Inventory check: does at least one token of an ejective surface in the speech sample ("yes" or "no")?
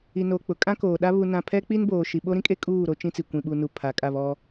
yes